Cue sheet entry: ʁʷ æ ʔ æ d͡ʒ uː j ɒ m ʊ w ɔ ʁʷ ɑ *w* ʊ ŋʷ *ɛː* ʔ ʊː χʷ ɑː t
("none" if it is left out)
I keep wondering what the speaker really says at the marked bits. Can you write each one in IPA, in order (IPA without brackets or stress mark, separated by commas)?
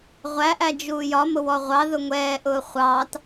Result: ð, ɛː